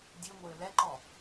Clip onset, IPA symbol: dʲ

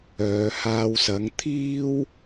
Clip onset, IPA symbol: œː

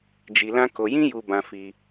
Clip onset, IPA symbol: d͡ʒ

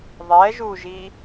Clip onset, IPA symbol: ðˤ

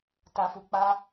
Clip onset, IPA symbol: t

